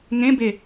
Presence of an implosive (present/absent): absent